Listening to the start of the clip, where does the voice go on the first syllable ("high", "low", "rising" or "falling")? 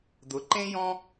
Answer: rising